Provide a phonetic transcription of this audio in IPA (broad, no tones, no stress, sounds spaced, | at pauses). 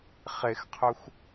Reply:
χ e x qʰ œ xʷ